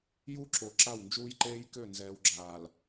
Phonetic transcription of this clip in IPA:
j u˦ ǁ o˨ ǁ a˦˨ w n d͡ʒ uː˦ j ǃ eː˦ j k ø˦˨ n z ɛː˨ w ɡ͡ǁ aː˨ l

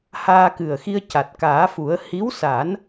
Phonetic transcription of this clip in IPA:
h aː˧ k ɨ˨˩ ə̯ x i˧ ə̯ c a˨˩ t̚ k aː˨˩˦ f u˨˩˦ ə̯ h i˧˥ w s a˨˩˦ n

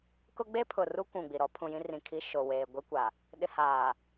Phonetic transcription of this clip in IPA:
k ʊ˦ ɡ͡b e˦ pʰ ʊ˨ r u˦ kʷ ũ˨ ɡ͡b i˨ ɾ ɔ˦ pʰ ũ˨ j ĩ˦ r ĩ˨ kʰ i˦ ʃ o˨ w eː˨ ɡʷ i˦ kʷ a˨ | ɗ ɪ˨ h aː˨

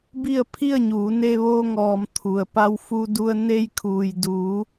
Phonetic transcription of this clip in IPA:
b i˥˨ ə̯ pʰ i˥˨ ə̯ ɲ uː˩˧ n e˧ ʋ oː˧ ŋ ɔː˩ m t̪ʰ u˩ ə̯ p a˧ w f u˧ d u˧ ə̯ n e˧ j kʰ uː˩ j d uː˩˧

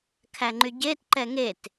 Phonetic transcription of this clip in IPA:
kʰ æ ŋ͡ǃ y ɟ e t ǃ ɛ ŋ e t

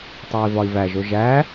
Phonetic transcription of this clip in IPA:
tˤ æ i̯ v ɒ i̯ v æ ʒ o ʒ æ

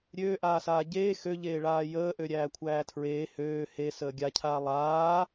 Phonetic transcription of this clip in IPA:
ɾʲ øː ʔ aː s aː ɟ eː x ø ʎ eː ɭ aː j əː ʔ ø ɾʲ æː kʷʰ æː tʰ ɹ eː h øː h e s əː ɡʲ a cʰ aː lˠ aː

